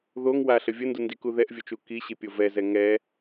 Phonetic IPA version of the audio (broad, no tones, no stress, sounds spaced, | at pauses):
ð o ŋ w a ɬ ə vʲ ə n d u n d i k u ð ɛ ʔ vʲ o t͡ʃ u k i ɕ i pʲ o v ɛ z ɛ ŋ ɛ